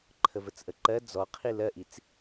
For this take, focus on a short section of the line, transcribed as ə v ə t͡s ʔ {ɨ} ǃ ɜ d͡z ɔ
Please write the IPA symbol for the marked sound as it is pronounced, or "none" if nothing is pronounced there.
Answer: ə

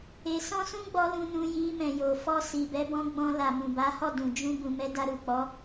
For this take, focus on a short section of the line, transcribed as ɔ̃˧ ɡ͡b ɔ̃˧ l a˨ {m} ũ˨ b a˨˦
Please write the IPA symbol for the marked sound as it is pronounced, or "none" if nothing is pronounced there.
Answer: m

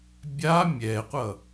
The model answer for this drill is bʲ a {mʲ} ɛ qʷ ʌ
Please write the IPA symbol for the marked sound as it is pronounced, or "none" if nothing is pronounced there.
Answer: mʲ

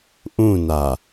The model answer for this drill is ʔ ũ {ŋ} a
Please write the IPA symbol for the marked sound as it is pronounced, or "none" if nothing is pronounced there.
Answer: n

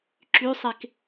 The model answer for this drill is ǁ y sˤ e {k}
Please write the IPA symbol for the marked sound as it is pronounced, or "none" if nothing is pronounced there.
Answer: k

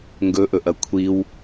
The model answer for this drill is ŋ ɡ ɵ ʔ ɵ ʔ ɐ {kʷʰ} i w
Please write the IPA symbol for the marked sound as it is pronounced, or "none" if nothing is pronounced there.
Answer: kʷʰ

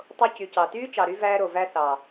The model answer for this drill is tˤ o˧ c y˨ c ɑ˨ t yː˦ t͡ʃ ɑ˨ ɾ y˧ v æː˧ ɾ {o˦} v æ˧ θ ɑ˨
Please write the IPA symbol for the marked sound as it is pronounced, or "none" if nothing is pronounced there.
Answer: o˨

